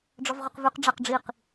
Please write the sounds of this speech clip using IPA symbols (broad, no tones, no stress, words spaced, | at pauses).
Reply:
ɖ͡ʐɒvʁøqvʉq ɖ͡ʐaqɖ͡ʐiq